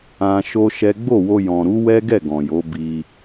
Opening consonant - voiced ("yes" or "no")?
no